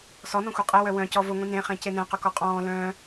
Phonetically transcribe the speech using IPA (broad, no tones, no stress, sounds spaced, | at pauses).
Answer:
s ɔ n ɔ̃ xʷ e qʼ ɛ w œ w œ̃ c ɔ v ʊ ŋʷ ĩ n ẽ χ ẽ c e n ɛ̃ q ʊ k ɔ qʼ ɔ̃ː l œ̃ː